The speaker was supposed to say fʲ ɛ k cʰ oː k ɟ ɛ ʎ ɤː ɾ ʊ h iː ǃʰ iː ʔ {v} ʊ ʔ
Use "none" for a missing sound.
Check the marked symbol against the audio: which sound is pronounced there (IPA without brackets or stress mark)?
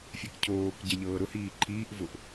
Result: v